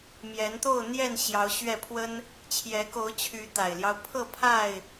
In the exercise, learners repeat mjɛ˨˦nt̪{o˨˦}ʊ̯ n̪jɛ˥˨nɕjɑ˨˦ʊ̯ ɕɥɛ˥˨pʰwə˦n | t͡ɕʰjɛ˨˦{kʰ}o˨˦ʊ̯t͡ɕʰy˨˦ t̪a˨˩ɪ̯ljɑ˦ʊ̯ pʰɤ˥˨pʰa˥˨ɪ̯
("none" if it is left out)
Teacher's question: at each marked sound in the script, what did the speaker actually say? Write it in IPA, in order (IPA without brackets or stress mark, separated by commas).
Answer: o˥˨, k